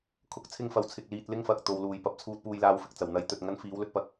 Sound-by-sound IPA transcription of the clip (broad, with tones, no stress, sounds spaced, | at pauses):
kʰ ʊ˨˥ k̚ t͡sʰ ɪ˧ ŋ f ɐ˨ w t͡sʰ ɪ˨ k̚ l iː˧ t̚ l ɪ˥ ŋ f ɐ˨ k̚ t̪ o˨ w l uː˨˩ j p ɐ˨˥ p̚ t͡sʰ uː˧ t̚ p uː˧ j l aː˧ w f ɪ˨ k̚ t͡s ɐ˨˩ w n̪ ɐ˨˥ j t̪ ɵ˨ t̚ ŋ ɐ˥ n f iː˨˥ w l ɵ˧ t̚ p ɐ˧ k̚